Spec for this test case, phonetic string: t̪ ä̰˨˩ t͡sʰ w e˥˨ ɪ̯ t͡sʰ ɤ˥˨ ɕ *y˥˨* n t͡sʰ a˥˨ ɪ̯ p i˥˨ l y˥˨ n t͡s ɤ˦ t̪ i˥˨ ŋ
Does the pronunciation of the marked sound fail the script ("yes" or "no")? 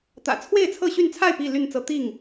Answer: no